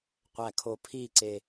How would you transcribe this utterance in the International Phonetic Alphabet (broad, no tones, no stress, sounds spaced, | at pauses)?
qʷ æ kʰ o pʰ i ǀ e